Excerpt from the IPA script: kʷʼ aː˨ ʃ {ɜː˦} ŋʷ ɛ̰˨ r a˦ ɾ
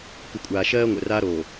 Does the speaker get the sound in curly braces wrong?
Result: no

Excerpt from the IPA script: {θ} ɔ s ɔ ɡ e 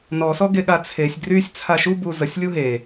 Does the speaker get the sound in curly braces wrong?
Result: yes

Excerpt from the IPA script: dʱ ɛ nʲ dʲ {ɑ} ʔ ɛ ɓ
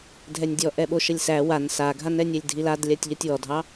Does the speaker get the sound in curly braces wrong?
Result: yes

